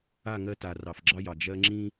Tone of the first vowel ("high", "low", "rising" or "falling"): falling